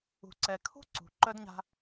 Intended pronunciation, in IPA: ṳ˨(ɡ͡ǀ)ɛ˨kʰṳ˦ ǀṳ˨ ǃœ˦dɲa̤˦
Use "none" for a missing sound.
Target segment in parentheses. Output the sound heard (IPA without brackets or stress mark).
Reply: ǀ